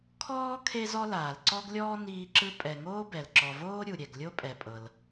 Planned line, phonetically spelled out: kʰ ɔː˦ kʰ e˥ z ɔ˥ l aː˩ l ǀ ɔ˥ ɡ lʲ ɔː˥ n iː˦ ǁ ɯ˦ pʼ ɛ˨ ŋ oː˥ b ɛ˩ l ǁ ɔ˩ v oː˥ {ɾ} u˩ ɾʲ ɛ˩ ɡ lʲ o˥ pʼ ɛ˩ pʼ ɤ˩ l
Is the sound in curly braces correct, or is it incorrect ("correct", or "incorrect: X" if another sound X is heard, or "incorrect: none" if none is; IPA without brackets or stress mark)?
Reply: incorrect: ɾʲ